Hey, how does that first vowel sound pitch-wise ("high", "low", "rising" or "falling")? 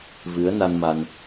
rising